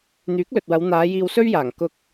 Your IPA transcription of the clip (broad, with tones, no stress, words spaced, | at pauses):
n̪yː˨˥k̚lɵ˨t̚wɐ˨˧w n̪aː˨˧ jiː˧wsɵ˥ɥjaː˨˩ŋ kʊ˧k̚